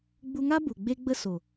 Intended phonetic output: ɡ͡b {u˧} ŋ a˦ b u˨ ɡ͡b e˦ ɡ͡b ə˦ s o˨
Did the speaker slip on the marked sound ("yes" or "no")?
no